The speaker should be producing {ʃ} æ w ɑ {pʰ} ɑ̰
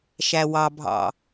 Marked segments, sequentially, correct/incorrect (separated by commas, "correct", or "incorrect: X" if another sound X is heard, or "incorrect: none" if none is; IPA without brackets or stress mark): correct, incorrect: bʱ